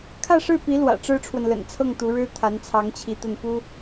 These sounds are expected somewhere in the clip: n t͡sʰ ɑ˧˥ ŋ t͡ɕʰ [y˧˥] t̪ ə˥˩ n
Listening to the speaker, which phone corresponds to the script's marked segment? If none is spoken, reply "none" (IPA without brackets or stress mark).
i˧˥